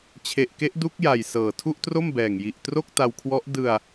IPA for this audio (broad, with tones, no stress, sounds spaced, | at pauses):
t͡ɕʰ e˨˩ ʔ k e˦˥ ʔ d u˦˥ k̚ j a˨˩ j s ɤː˨˩ tʰ u˥˩ ʔ t r o˥˩ m b ɛː˨˩ ŋ j i˨˩ ʔ t r o˥˩ k̚ t a˧ w kʰ w ɔ˦˥ ʔ d ɯ˧ a̯